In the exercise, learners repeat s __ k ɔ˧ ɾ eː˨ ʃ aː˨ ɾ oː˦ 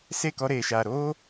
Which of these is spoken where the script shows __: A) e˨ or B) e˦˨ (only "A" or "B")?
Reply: B